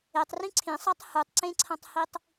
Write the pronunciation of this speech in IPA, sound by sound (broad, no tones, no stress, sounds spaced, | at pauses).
e tˤ r ĩ ǀʰ ĩ sˤ a tˤ h u tˤ ǀ ẽ ǀʰ ɐ̃ tˤ h i tˤ